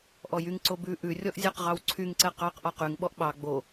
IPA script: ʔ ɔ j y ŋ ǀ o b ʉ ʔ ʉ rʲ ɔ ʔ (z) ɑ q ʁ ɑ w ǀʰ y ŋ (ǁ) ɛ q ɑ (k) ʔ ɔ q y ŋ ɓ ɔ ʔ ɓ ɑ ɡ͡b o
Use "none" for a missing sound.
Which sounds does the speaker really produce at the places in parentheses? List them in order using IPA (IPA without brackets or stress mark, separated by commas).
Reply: zʲ, ǀ, q